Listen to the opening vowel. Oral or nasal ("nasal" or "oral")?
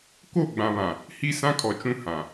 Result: oral